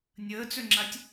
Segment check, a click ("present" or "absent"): present